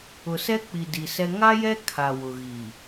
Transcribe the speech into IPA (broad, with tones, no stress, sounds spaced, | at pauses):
ʊ˨ s ɛ˦ k͡p i˨ d i˨ s ɛ˦ ŋ a˦ j ɛ˦ kʰ a˨ w ʊ˨ ɣ i˨